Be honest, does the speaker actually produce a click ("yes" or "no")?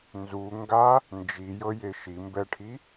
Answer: no